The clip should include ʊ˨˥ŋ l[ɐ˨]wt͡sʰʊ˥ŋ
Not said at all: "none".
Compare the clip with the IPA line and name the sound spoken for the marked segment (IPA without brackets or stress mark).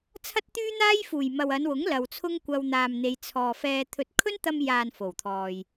ɐ˨